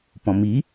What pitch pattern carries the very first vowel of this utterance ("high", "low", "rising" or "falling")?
low